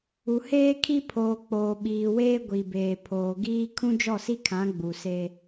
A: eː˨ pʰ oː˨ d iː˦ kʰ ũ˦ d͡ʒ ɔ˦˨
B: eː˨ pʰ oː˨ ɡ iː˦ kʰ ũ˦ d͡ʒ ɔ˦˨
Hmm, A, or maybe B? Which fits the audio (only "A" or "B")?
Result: B